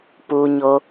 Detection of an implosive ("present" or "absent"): absent